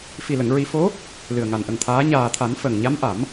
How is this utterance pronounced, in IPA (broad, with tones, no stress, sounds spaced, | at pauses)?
f i˨˩ l ə˨˩˨ ŋ ɹ i˨˩˦ f o˧˥ | l ɨ˨˩ ə̯ ŋ a˨˩ n ʔ ə˨˩ ŋ t̪ʰ aː˧˥ ɲ aː˨˩ t̪ʰ a˨˩˦ n f ə˨˩ ŋ ɲ a˧˥ m ʔ a˨˩˦ m